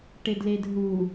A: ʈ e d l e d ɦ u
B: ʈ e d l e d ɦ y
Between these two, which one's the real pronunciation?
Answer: A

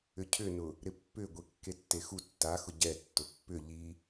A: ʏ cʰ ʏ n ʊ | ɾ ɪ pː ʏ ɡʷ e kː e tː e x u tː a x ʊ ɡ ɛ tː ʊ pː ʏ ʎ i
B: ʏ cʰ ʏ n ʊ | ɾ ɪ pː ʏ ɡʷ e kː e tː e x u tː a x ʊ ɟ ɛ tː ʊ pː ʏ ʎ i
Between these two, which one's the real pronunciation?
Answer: B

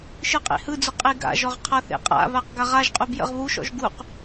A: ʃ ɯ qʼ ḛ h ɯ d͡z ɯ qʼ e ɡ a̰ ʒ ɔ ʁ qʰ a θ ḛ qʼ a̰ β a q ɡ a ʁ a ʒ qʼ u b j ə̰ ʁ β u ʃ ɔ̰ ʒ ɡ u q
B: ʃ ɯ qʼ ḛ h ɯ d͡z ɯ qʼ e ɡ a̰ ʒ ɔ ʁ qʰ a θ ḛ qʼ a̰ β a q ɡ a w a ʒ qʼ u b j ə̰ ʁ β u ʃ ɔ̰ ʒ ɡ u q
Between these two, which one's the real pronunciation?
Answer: A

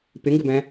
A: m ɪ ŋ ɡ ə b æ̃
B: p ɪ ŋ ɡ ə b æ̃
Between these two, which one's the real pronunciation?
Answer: B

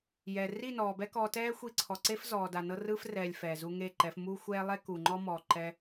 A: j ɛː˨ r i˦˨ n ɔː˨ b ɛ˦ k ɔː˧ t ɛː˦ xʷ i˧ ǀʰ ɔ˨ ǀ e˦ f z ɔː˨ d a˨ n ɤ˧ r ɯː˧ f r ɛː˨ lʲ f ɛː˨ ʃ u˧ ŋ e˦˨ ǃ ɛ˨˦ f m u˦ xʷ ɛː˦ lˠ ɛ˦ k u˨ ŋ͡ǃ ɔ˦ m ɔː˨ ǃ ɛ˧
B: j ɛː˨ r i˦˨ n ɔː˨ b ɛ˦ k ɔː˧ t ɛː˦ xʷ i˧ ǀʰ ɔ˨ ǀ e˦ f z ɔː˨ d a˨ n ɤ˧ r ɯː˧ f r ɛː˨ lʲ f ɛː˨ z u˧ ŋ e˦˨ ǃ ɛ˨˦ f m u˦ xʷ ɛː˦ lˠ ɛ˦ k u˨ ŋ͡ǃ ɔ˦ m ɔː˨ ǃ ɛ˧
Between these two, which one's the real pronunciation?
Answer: B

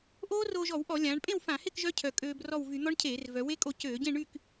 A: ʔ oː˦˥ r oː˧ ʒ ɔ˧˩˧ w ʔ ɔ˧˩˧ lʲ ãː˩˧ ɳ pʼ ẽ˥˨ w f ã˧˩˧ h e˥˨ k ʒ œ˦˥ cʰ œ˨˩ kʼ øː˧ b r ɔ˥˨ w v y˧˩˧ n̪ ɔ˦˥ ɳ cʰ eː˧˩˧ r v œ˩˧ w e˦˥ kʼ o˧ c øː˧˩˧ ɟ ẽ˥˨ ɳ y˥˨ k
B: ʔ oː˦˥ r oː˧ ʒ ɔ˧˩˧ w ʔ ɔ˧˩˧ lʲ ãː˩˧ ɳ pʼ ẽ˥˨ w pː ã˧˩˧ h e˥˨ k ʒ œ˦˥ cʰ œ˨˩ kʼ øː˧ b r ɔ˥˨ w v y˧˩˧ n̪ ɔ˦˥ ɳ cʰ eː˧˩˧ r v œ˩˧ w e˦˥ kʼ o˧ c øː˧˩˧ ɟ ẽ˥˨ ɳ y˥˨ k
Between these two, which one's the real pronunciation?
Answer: A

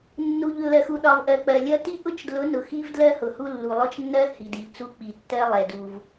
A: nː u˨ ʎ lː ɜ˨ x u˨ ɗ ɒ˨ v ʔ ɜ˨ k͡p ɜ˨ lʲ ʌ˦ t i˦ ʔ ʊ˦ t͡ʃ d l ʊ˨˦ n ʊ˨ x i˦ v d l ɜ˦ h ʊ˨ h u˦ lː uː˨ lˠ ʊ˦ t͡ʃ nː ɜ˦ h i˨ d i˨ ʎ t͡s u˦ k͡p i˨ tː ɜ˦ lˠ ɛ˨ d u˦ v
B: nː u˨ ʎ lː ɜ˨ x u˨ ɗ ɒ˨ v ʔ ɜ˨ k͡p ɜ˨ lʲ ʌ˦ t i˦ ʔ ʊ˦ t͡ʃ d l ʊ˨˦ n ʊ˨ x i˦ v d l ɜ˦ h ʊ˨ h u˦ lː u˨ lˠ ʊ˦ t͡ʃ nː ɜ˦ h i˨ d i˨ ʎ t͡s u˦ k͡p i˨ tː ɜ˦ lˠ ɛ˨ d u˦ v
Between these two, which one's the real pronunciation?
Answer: B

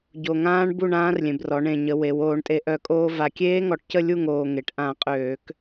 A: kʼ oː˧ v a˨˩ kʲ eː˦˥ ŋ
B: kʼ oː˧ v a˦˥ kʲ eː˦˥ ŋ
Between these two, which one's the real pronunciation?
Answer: A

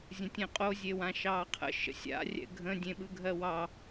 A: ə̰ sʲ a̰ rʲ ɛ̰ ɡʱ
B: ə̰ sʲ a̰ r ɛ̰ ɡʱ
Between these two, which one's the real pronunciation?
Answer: A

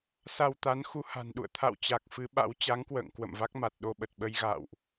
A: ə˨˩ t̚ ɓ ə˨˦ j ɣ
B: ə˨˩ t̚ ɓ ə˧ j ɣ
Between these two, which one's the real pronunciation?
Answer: B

